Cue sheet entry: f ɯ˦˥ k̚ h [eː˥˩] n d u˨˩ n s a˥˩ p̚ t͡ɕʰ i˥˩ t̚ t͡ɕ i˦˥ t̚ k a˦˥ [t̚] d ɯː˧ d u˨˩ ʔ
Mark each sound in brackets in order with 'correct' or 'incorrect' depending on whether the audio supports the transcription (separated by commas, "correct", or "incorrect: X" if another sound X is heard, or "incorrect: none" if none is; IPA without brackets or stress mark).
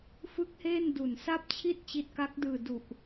correct, incorrect: k̚